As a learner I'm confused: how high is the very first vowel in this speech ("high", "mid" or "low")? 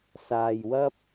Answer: low